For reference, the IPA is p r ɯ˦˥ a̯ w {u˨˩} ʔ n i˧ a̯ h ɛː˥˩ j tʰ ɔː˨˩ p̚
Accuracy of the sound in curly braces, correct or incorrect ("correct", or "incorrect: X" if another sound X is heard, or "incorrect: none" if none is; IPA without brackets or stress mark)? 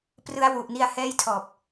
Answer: correct